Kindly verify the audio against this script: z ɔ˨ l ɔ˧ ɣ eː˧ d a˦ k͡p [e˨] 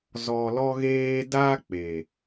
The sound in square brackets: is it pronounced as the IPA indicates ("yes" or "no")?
yes